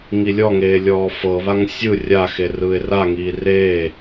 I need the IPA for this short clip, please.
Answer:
ŋ i lʲ ɔ ŋ eː lʲ ɔː f ɤ β a ŋ sʲ ɯ rʲ a x e r ɯː ɪ̯ r a ŋ iː r eː

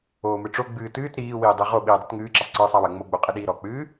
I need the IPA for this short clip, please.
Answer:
oː m ɨ ʈ͡ʂ o ɡ͡b ɨː t ɨː t ɾ iː w iː dˤ i ʁ o ɓ iː dˤ ɨ t ŋ ɨː ǁ ɐ sˤ ǀ ɨː sˤ a w ɐ ŋ͡m o ɡ͡b o qʼ i ɗ iː ɾ ɔ k͡p ɨː

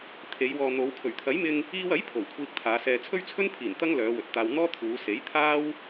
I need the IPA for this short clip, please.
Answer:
t̪ʰ e˨˧ j w ɔː˨ n̪ o˨˧ w kʰ ɵ˨˩ ɥ t̪ʰ ɐ˨˥ j m ɪ˧ ŋ | iː˧ w ɐ˨˥ j pʰ o˨˩ w kʷʰ iː˧ k̚ t̪ʰ aː˨˧ s ɛː˨ t͡sʰ ɵ˥ ɥ t͡sʰ ɵ˥ n pʰ iː˨˩ n t̪ ɐ˥ ŋ l œː˨˧ w ɵ˨ t̚ t̪ aː˧ w n̪ ɔː˥ t̪ʰ uː˨˧ s e˨˥ j t̪ʰ aː˥ w

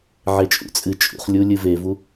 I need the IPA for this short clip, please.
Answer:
ʕ e t͡ʃʼ ṵ t͡sʼ ɨ t͡ʃʼ ṵ χ lʲ u lʲ ɨ v e v u

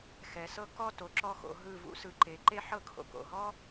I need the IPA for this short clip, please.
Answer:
x ɛ˩˧ s ɤ˥ k ɔ˥˧ t o˩˧ ǁ ɔ˥˧ x o̰˩˧ ɦ ɯ˧˩ v ṵ˥ s ɯ˩˧ ǃ e˩˧ ǃ e˥ ħ ɤ˥ kʰ o̰˧ k o̰˧˩ ɦ ɔ˥

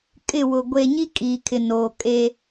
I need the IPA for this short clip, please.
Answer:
kʼ ɪ˦˨ w ʊ˨ ɡʷ e˨ ɲ i˦ kʼ iː˨ kʰ ɪ˨ n oː˨ kʼ e˦

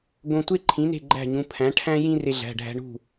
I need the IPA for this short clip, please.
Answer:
ɡ õ˧ tʷ e˥ ǃʰ ĩ˩˥ n e̤˥˩ ɡ͡ǃ æ̤˥˩ ɲ ũ˩˧˩ pʰ æ̃˩˥ ʈʰ æ̃˥ j ĩ˥ r e˧ ɮ æ̤˩˧˩ ɖʱ æ̤˧ ɳ ṳ˥˩

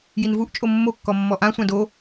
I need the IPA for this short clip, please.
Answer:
j i n v u ʔ t͡ʃʼ o mː o kː ɔ mː ɔ ʔ ã sʷ ã d o

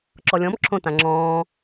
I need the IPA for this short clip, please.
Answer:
ǁ ɔ lʲ ɔ̃ m ǁʰ õ t ã ŋ͡ǁ ɔ̃ː

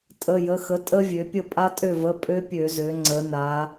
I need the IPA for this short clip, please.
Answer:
tʼ ə˩˧˩ j ə˩˧˩ x ə˩˥ tʼ ə˦˥ vʲ ø˩˧ pʲ ə˥˩ pʼ a˦˥ tʼ ø˥˩ v ə˩˧˩ pʼ ø˦˥ pʲ ø˧˩˧ z ø˩˧ ŋ͡ǀ ə˩˧ n a˩˧

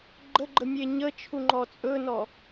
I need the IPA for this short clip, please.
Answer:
ɡ͡ǃ ə ɡ͡ǃ ə mʲ e ɲ ə t͡ʃʰ u ŋ͡ǃ ɔ t͡sʼ ɵ n ɔ

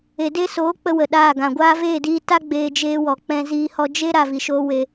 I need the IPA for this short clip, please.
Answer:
e˨ d e˦ s oː˨˦ k͡p ə˦ w ə˨ ɗ aː˦˨ ɡ ã˨ ɡʷ aː˧ v eː˦˨ d iː˧ t a˦ ɡ͡b eː˧ d͡ʒ eː˦ w ɔ˨ k͡p ɛ̃˧ z iː˧ h ɔ˧ d͡ʒ e˦ ɾ a˨ v i˨ ʃ oː˧ w e˧

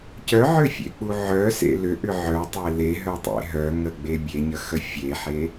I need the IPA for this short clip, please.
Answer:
c œ ʕ ʏ fʲ ḛ k͡p u ʕ œ s ḛ l ʏ ʔ ʏ ʕ œ tˤ e l e ɦ œ tˤ ḛ ɦ œ ŋ ə ɡ͡b e bʲ e ɲ ə x ə fʲ e ħ e

